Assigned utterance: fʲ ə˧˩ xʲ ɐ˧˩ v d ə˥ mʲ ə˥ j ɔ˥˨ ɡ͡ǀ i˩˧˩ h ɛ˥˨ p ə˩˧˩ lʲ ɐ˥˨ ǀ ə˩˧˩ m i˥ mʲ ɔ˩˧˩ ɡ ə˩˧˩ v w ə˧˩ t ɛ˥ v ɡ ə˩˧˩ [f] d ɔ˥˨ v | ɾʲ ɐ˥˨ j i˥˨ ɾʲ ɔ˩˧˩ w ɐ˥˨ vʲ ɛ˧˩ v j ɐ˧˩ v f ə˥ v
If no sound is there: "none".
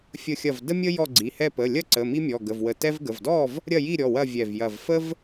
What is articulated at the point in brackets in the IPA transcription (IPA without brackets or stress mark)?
v